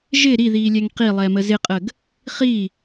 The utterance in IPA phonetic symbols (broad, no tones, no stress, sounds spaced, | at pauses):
ʒ ɪ ɾ i ð iː lʲ ɛ ŋ q i lˠ ɛ m ə z ɪ qʼ ə ɡ | χ i